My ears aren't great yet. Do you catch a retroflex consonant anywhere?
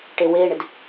yes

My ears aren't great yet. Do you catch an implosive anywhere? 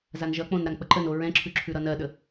yes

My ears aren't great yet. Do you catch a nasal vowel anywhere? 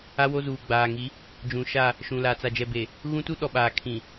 yes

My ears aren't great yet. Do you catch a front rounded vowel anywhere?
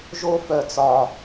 yes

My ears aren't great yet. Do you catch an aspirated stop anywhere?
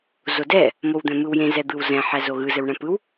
no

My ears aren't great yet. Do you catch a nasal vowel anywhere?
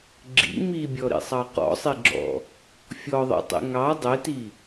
no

